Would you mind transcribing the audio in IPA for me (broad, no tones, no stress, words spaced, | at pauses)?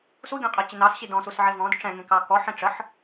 suɡʲɔ̃qʼɛt͡ɕɪ nɑsɕi dɔ̃susʕe vɔ̃d ʈ͡ʂɛ̃ŋẽkɑ kɔħẽ ʈ͡ʂəħ